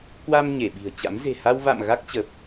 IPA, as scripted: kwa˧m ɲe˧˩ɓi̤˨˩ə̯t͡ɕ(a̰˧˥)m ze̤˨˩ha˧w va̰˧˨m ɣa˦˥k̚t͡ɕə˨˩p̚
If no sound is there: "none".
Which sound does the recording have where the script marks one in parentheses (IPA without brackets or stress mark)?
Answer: a̰˧˥